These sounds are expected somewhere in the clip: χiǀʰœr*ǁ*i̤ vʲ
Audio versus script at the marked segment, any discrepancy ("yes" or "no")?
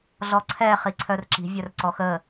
no